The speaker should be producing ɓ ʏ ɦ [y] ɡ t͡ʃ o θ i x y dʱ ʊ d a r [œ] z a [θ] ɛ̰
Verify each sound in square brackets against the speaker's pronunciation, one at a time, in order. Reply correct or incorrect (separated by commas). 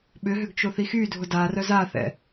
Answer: incorrect, correct, correct